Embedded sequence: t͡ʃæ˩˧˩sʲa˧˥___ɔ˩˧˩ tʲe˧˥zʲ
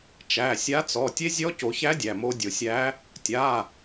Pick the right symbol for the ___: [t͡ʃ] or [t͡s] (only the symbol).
t͡s